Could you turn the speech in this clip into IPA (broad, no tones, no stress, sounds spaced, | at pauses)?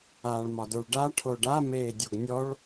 aː ɭ m ɒ d ə˞ ɭ ɖ a ʈʰ o ɖ a m eː dʲ o ɡ nʲ ɔ ɭ